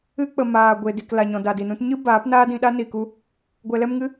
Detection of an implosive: present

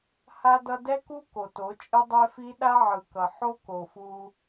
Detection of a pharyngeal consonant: present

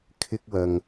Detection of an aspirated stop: present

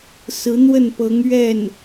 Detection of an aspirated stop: absent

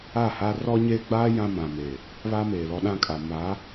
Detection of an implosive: present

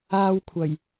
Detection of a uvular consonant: absent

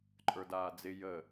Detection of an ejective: present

